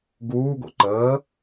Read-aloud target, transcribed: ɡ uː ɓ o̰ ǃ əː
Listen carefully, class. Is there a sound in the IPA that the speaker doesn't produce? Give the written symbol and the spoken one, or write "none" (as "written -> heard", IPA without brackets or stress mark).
ɓ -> ɡ